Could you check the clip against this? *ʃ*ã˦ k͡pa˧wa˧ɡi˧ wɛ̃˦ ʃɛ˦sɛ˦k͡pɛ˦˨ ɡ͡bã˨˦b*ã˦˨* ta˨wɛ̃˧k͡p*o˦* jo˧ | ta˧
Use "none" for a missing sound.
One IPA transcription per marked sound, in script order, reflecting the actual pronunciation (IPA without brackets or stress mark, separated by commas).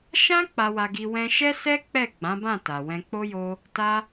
ʃ, ã˦˨, o˦